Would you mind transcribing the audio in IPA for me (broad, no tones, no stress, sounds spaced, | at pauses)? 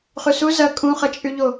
χ y s u z ɐ kʼ ũ χ ɐ t͡ʃʼ y ʎ o